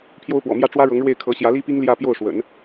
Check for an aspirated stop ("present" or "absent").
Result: present